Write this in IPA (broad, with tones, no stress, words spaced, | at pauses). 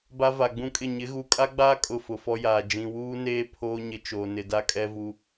ba˦va˨ɡ͡bũ˦kʼɪ˦˨ ɲɪ˨˦ɣu˨kʼa˦ɡ͡baː˦ kʼʊ˦˨fʊ˨fɔ˦jaː˨ d͡ʒĩ˨wuː˦neː˦ pʰoː˦ ɲɪ˦ t͡ʃoː˨nɪ˨da˦ kʼɛ˦ vu˦